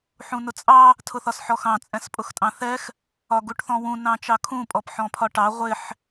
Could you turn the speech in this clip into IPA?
ħ ũ n ʊ t͡sʼ ɑ | tʰ ʊ θ ɒ s ħ ɔ x ɑ̃ t͡sʼ ɛ̃ s pʼ ʊ x tʼ ɑ̃ θ ɛ x | ɒ ɡ u ʈ θ ɔ̃ w ũ n ɑ̃ t͡ʃ ɑ kʰ ũ pʼ ɔ p ħ ɔ̃ pʰ ɒ ʈ ɑ ʁʷ ɪ ħ

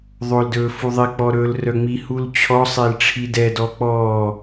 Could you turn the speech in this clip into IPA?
ðˤ o l d ɵː f u ðˤ i k͡p ɔ ɾ ɵ l r œ ŋ͡m i h u l t͡ɕʰ ɔ sˤ e l ʈ͡ʂʰ i d ɛ d ɔ k͡p ɔː

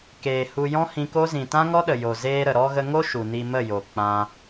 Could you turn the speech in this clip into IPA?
k eː˨ h u˧ j ɔ̃˦ h ĩ˧ k o˦ z ĩ˨ t ã˦ ŋ ɔ˦ ɗ ə˨ j o˨ z eː˧ ɾ ə˨ ɾ ɔ˧ ɣ ə˧ ŋ o˦ ʃ u˨ n i˧ m ə˦˨ j o˨ k͡p ã˧

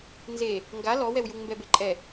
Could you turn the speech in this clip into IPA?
n z e | ŋ ɡ a l ɔ w ɛ w j u ŋ m b ɛ b e ǃʼ ɛ

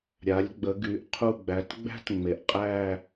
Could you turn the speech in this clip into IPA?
ɾʲ a˩˧ lʲ ɡ͡b ə˩˧ ɡ y˩˧ ʔ qʰ u˧˩ ɡ͡b æ˩˧ t ɡ͡b æ̤˥ t ŋ͡m e˩˧ ʔ qʼ æ˥˧

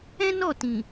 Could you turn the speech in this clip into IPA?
ɛ̃˦ n ɔ˦˨ t ĩ˨

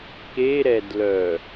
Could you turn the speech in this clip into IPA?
k e ɾ ɛ d l œ

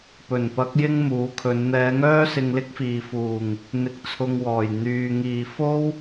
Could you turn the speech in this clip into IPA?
p ɵ˨˩ n p ɐ˨˥ k̚ j ɪ˥ ŋ m uː˨˥ kʰ ɵ˨˧ n n̪ ɛː˨˧ ŋ œː˥ s ɪ˧ ŋ l ɪ˥ k̚ f iː˨ f uː˨˩ ŋ | n̪ ɪ˨ k̚ t͡sʰ ʊ˨ ŋ w ɔː˨˩ j n̪ yː˨ ŋ iː˨ f o˥ w

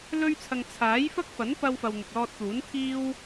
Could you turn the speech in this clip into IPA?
l ɵ˥ ɥ t͡sʰ ɐ˧ ŋ t͡sʰ aː˨˥ j f ɐ˥ k̚ f ɐ˨˥ n p ɐ˧ w f ɐ˨ w n̪ ʊ˨ k̚ l ɔː˧ t̚ t̪ uː˨˥ n t̪ʰ iː˥ w

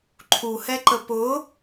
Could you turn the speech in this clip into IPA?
ǃʰ u h ɛ ǃ ə p ʊ

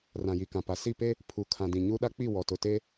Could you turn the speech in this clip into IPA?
r ã˨ j i˨ k ã˨ p a˨ s i˦˨ p e˦ | pʰ u˨ kʰ ã˨ d ĩ˨ ɲ u˦ ɗ a˦ k͡p i˦˨ w ɔ˨ t ʊ˨ t e˦

